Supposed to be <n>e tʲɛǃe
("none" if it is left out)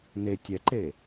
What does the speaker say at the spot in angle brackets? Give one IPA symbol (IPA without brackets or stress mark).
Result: n